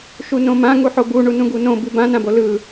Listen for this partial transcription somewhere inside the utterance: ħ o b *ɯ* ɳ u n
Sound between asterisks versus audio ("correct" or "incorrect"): incorrect